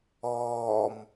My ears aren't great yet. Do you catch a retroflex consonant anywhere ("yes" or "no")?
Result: no